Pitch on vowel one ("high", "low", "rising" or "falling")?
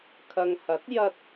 low